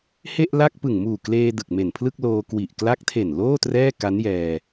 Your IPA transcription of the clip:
h e˥˩ ʔ l a˥˩ k̚ p ɯ˨˩ ŋ m uː˨˩ k l eː˧ d ɯ˨˩ k̚ m e˨˩ n pʰ l ɯ˥˩ k̚ l oː˧ k w i˨˩ ʔ k l a˦˥ k̚ tʰ e˨˩ n l oː˥˩ t r ɛː˥˩ k a˦˥ n j ɛː˧

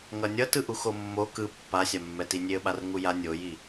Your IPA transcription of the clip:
ŋ ʌ nʲ ʌ t ɯ ʔ u x o mː o k ɯ pː a sʲ a mː ɛ t i nʲ e ə̯ ɓ a r ŋ u j a nʲ o j i

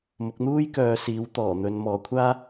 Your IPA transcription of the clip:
m ʊ˨˥ k̚ n̪ uː˥ j k œː˨˧ s iː˨˥ w t̪ ɔː˨˩ n̪ ɵ˨˧ n m ɔː˨˧ kʷʰ aː˥

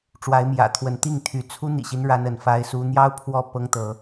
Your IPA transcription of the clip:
ʈ͡ʂ w a˨˦ ɪ̯ m j ä̰˨˩ t̪ʰ w ə˨˦ n t̪ i˥˨ ŋ t̪ʰ y˨˦ t͡sʰ u˦ n̪ ḭ˨˩ ɕ i˦ n ɻ a˦ n ə˨˦ n f a˦ ɪ̯ s u˦ n̪ j ɑ˦ ʊ̯ pʰ w ɔ˦ p ɤ˦ ŋ t̪ ɤ˨˦

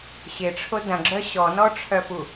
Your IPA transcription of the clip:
ɕ ɪ ʈ͡ʂʰ o d ɐ̃ ɡ͡ǁ œ ɕ ɔ n ɔ ʈ͡ʂʰ œ f u

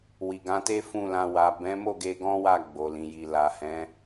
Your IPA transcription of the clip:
w i˨ ɡ ã˨˦ t e˦ f ũ˦˨ l ã˧ w a˨ b ɛ̃˨˦ m o˦˨ ɡ e˧ ɡ ɔ̃˦ w a˦˨ ɡ͡b o˨ l ĩ˨ j i˨ l a˨ h ɛ̃˨˦

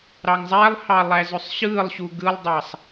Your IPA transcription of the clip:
ɾ ɑ ŋ zˤ æ lˠ h ɑ lˠ æ z ø sˤ ɕ ɯː lˠ ɕ u ɡ ɯ lˠ dˤ ɑ sˤ

